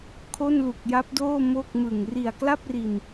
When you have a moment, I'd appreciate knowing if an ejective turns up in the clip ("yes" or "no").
no